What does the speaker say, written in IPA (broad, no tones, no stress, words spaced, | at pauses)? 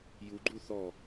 juɡ͡ǃu θɔ